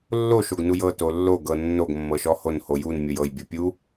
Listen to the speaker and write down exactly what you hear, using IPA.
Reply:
lː o ʃ o ɡ n u j ɤ t o lː o ɡ ɤ nː o ɡ mː ɤ ʃ ɔ h o n h o j u n mʲ o j ɤ j bʲ o pʲ u

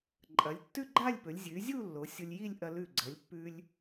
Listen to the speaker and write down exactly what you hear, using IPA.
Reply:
ǃʼ ɐ˩˧ lʲ tː ʉ˥˧ ɡ͡ǃ a˥˧ lʲ p ɵ˩˧ lʲ zʲ ʉ˩˧ zʲ u˥˧ lː o˩˧ sʲ o˧ lʲ j i˥˧ lʲ ʔ ɐ˧ l ʉ˧˩ ɡ͡ǀ ɐ˩˧ lʲ pː ʉ˧ lʲ

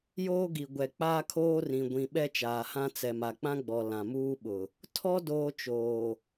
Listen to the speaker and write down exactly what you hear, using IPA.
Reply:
j oː˦ ɡ i˨ ɡʷ ɛ˨ k͡p aː˦ kʰ oː˦ r ĩ˨ ɡʷ ĩ˨ ɓ ɛ˦ t͡ʃ aː˨ h ã˦ t͡s ɛ˨ m a˨ k͡p ã˦ ɡ͡b ɔ˨ l ã˨ m uː˦ ɓ ʊ˨ | tʰ ɔ˦ d oː˦ t͡ʃ oː˨

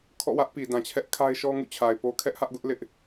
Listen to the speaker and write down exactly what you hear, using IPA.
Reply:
kʰ ɔ̰˦˨ w ä˦ ʔ p i˨ d ã˨ t͡ɕʰ ɛ˦ ʔ kʰ a˦ ɪ̯ ʃ ɔ˦ ŋ ṵ˦˨ t͡ɕʰ a˨ ɪ̯ p o˦ kʰ ɛ˦ ʔ h ä˦ ʔ ɡ ʊ˦ ʔ l ɪ˦ ʔ

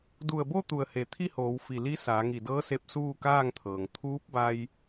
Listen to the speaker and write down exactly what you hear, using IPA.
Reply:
d u˧˩ ə̯ b o˥˨ t̪ u˧˩ ə̯ h e˩˧ t̪ʰ i˥˨ h oː˩˧ w f i˧˩ l i˧˥ s aː˩˧ ŋ i˧˩ d ɤː˧˥ s e˧ p̚ s uː˥˨ k aː˥˨ ŋ t̪ʰ ɤː˩ ŋ t̪ʰ uː˧˥ p̚ b a˧ j

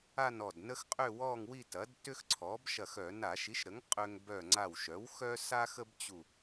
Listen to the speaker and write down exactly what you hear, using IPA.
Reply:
a˥˧ n ɔ˧˩ d n ə˥ x qʼ ʏ˥˧ w ɔ˥˧ ŋ w i˥˧ t ɐ˩˥ d t ʏ˥ x ǀʰ ɔ˩˥ b ʃ ɐ˧˩ x œ˧˩˧ n a˧˩˧ ʃ i˩˥ ʃ ɾ ə˩˥ ŋ qʼ ø˧ ŋ b œ˧˩ ŋ͡ǀ a˧˩ w ʃ œ˩˥ w x œ˥ s a˥ x ə˥ b t͡ɕ u˧˩

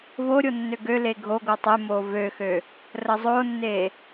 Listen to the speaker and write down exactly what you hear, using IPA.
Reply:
v o ɾʲ o nː ø ɡ ø l e ɡʱ o ɡ o tˤ e m o v ø x ø | r ə zˤ o nː e

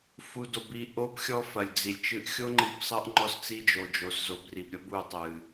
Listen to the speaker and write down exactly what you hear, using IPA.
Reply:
f u˨ d o˨ b i˨ ʔ o˦ b xʲ ɔ˦ f ɐ˨ lʲ d͡z i˨ lʲ t͡ʃ ɨ˦ ʔ xʲ o˦ ŋ͡ǃ i˨ b sˤ ɐ˦ ʔ ŋ͡ǃ ɔ˦ s t͡s i˦ d͡ʒ o˨ d͡ʒ o˨ s z o˨ b r i˨ b ɾʲ ɐ˦ b u˨ tˤ ɨ˨

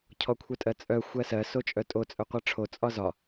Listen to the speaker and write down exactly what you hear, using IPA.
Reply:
cʰ ɔ kʷʰ œ tʼ ɜ t͡sʼ œ xʷ ɜ s ɜ s o t͡ʃʼ œ tʼ o t͡sʼ œ qʷ ɜ ʈ͡ʂʰ o t͡sʼ ɒ z ɒ

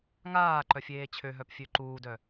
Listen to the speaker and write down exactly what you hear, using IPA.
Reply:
ŋ aː ǃ œ fʲ eː t͡ɕʰ ø ɦ œ p fʲ ø ǃ uː d œ

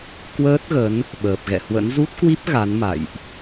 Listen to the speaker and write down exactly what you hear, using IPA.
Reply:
k w əː˦˥ t̚ ɣ ə˨˦ n | ɓ əː˨˩ p̚ ɣ ɛ̰˧˨ h w ə̰˧˥ n z u˦˥ t̚ k w i˦˥ p̚ ɣ a˨˦ n m a̰˧˨ j ʔ

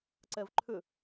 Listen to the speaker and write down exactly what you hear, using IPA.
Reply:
ǀ ɛ v ǃʰ ʏ

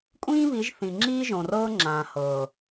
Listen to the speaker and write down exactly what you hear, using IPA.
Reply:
kʷʼ ĩː˦ β i˨˦ ʒ θ ĩ˨ ŋ͡ǁ iː˦ ʒ õ˨ r ɤː˦ ŋ͡ǁ ãː˨ h ɤː˨

